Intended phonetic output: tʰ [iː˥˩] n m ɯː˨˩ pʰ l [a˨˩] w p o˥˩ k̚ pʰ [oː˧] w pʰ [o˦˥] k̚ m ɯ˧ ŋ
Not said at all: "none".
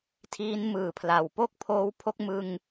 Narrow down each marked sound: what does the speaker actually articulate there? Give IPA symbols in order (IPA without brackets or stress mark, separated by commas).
iː˦˥, a˨˩, oː˧, o˦˥